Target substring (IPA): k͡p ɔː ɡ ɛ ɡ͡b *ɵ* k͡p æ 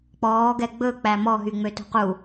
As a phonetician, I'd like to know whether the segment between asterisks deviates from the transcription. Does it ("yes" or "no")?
no